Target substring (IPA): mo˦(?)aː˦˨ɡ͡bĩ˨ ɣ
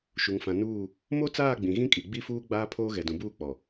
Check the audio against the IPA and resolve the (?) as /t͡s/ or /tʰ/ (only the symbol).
t͡s